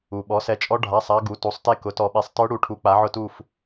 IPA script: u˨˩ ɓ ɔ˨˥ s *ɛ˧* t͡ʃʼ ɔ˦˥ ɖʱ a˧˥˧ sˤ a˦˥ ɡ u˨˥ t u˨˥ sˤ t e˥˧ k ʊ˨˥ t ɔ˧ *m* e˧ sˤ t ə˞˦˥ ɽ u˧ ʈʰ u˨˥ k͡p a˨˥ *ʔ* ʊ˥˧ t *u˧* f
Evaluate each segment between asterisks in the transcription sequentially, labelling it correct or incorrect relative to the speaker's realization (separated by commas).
correct, incorrect, incorrect, incorrect